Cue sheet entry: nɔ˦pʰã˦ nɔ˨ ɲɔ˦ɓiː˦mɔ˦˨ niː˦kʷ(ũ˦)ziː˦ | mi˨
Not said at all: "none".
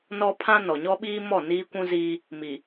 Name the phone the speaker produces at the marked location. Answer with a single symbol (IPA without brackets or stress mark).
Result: ũ˦